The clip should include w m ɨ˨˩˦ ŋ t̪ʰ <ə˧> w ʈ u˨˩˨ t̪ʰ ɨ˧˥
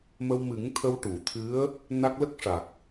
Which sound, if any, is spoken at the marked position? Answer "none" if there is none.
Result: ə˧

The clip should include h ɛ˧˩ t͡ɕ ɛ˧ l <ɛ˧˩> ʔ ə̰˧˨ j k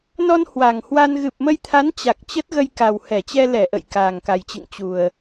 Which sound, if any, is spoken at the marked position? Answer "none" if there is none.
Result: ɛ˧˩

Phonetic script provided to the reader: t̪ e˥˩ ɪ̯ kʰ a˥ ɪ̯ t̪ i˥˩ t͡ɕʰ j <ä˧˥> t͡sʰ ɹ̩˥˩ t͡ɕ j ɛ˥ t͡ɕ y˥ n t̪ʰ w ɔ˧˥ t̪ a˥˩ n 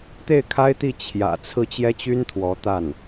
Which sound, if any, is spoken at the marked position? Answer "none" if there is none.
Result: ä̰˨˩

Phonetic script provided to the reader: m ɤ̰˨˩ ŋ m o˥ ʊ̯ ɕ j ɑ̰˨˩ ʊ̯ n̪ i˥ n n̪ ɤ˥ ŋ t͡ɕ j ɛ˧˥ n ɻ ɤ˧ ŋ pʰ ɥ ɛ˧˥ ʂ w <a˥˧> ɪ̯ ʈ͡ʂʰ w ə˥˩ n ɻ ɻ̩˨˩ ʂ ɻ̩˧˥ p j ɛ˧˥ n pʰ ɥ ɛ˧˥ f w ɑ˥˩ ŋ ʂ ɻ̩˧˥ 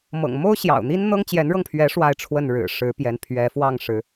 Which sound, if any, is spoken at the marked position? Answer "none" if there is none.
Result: a˥˧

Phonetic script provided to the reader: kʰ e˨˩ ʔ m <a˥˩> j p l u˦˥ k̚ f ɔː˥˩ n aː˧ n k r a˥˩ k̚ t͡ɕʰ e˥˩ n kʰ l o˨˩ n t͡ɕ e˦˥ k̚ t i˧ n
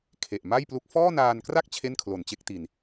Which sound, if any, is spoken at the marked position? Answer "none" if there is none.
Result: a˥˩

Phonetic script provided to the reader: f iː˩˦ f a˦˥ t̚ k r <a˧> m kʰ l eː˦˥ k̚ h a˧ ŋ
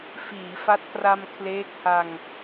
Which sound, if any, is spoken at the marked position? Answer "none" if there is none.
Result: a˧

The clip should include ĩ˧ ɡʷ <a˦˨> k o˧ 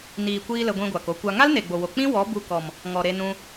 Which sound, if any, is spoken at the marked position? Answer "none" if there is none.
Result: a˨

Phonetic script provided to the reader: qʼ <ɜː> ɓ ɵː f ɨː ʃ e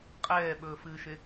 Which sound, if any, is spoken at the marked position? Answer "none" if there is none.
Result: ɛː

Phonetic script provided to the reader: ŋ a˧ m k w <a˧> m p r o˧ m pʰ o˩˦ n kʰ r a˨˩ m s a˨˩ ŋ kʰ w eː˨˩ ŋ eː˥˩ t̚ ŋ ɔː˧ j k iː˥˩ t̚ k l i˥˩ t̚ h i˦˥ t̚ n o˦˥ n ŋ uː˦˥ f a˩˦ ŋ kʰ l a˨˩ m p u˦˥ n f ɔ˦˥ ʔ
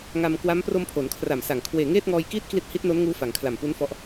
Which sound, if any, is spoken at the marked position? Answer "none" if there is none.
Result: a˦˥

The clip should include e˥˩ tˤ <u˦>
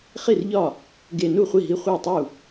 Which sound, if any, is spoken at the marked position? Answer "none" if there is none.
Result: u˥˩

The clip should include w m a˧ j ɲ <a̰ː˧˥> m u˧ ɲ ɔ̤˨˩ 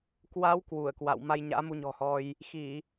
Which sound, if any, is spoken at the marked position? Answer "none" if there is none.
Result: a̰ː˧˥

